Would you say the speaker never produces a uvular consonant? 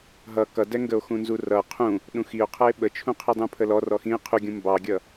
no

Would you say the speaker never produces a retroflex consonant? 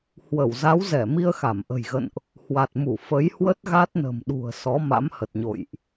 yes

